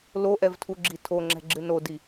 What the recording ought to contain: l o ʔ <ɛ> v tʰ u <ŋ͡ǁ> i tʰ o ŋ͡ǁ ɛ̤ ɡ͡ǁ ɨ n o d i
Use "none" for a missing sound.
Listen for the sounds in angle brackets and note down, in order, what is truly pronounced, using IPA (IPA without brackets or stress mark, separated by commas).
ɛ, ɡ͡ǁ